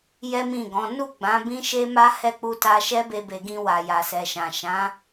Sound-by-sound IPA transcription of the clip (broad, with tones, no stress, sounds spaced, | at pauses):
j ɛ˦ m ĩ˦˨ ɡ ɔ̃˨˦ n u˦˨ ɡ͡b ã˨˦ b ĩ˦ ʃ e˦ m a˦ h ɛ˦˨ k͡p u˧ t a˧ ʃ ɛ˦ b e˧ b e˨ ɡ ĩ˧ w a˨ j a˨ s ɛ˨ ʃ ã˨ ʃ ã˨˦